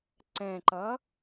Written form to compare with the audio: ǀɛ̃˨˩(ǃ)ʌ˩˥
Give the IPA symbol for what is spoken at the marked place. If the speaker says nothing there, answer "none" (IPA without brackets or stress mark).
ǃ